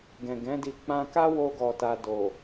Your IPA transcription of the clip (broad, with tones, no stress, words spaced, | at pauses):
ɡɛ̃˨ ɡɛ̃˨˦di˧ k͡pã˧ ka˦wo˧ɡɔ˨ta˨ do˨